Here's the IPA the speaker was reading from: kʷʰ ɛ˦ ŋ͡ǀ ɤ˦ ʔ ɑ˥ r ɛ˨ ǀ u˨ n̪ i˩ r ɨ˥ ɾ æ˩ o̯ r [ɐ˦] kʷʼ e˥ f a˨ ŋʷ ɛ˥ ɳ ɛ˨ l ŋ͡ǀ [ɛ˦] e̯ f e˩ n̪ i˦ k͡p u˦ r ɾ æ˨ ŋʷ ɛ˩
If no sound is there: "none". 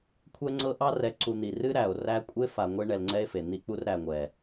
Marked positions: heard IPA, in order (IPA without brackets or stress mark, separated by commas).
æ˦, ɛ˦